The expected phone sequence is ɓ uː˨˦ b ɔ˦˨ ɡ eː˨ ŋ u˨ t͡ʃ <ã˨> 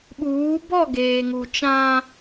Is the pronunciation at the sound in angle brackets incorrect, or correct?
incorrect: ã˦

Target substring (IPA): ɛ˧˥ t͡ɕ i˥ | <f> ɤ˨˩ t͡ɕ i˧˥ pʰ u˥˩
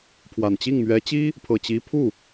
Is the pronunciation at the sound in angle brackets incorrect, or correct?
incorrect: pʰ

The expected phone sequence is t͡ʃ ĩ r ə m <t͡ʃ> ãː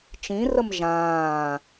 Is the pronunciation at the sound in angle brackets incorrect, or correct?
incorrect: ʒ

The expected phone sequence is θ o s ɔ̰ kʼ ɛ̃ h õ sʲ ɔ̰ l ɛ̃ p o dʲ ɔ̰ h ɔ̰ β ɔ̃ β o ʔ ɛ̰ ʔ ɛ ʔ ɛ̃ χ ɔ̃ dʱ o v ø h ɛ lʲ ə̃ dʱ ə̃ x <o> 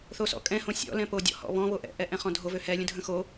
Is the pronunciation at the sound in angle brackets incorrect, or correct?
correct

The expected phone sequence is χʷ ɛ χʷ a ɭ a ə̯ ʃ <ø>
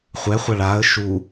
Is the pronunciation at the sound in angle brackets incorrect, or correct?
incorrect: u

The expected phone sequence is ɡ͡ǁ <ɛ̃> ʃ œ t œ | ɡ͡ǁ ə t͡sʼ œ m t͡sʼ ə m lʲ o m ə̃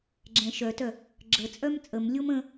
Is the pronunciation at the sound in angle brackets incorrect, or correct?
correct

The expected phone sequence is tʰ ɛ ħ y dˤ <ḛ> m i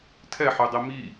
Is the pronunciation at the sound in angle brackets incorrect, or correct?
incorrect: e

